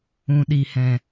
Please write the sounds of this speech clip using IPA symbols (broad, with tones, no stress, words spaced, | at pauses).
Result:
ũ˨ ɗi˨hɛ̃˨